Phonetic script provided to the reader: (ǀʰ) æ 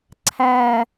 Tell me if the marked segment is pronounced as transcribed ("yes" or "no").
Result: yes